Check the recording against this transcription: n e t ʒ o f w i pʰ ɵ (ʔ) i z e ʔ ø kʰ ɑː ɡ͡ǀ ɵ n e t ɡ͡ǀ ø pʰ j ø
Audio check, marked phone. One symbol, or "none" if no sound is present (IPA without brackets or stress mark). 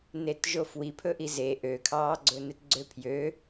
ʔ